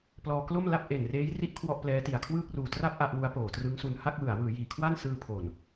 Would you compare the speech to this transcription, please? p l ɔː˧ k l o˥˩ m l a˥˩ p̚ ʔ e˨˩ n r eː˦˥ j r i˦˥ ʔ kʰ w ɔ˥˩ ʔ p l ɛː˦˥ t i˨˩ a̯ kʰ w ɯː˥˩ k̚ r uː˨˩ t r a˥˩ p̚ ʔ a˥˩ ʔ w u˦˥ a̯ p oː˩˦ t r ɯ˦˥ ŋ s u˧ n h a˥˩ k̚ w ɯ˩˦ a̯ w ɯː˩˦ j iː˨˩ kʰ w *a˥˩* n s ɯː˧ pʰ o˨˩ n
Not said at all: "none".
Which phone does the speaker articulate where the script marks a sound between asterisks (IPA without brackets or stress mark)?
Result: a˥˩